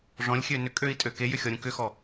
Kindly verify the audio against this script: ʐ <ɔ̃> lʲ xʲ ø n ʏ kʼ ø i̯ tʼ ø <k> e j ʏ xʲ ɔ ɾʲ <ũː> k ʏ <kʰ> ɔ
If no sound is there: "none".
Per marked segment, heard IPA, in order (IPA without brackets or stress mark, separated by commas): ɔ̃, k, ũ, x